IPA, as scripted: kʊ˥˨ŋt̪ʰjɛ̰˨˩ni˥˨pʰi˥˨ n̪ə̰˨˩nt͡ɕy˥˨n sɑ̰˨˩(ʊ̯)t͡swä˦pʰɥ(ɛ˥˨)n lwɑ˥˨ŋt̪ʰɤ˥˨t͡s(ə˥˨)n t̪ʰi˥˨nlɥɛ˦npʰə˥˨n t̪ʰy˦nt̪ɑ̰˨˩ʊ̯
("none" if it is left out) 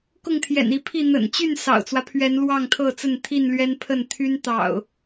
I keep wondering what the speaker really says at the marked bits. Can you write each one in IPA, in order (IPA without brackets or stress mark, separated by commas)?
ʊ̯, ɛ˨˦, ə˥˨